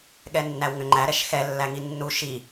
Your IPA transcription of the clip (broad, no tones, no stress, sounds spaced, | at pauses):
ɠ ɛ nː æ w ŋ ʏ ŋ͡ǃ æ ɾ ɛ ʃ x ɛ lː æ ŋ i nː u ʃ i